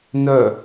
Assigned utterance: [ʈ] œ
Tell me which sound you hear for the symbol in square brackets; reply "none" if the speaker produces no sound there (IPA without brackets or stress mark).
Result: n